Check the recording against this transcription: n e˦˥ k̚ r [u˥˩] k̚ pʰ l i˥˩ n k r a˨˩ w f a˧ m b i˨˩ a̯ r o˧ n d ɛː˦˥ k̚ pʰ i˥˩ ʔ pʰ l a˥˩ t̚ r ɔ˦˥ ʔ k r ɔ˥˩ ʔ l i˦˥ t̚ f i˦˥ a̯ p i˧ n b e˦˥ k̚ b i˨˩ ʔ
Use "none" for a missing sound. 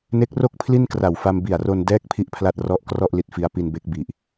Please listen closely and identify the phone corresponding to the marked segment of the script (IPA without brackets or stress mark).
o˥˩